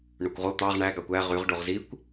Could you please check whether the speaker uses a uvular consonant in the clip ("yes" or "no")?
yes